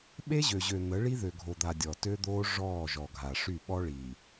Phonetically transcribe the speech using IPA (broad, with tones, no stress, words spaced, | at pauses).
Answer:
ɓe˦ʑø˨ʑø˨ n̪ə˨˦ ɭi˦ðø˨ɡʱo˨d̪a˨ dʲɔ˨ tø˦d̪oː˦ ʐɔː˦˨ʒɔ˨ɡʱa˨ ʂy˦˨ɓɔ˦ɭi˨